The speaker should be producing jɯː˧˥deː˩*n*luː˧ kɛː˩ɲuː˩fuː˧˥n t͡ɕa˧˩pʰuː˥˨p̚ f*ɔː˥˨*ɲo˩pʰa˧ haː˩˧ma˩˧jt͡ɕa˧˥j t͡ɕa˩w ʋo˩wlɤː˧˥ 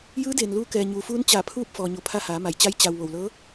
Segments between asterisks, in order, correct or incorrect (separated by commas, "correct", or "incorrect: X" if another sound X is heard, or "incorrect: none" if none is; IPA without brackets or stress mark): correct, incorrect: ɔː˩